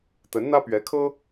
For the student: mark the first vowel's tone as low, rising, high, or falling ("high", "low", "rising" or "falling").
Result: rising